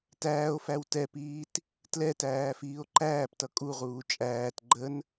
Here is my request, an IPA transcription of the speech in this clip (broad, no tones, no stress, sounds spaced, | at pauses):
t æː o̯ f æ w t ɛ p iː t | t l ɛ t æː f iː o̯ ǃ æː p t ʌ kʼ u ʁ uː t͡ʃʼ æː t ɡ͡ǃ ə n